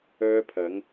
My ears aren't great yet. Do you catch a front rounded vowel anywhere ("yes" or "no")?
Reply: yes